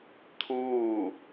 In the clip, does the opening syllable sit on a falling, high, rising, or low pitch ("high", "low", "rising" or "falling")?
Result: falling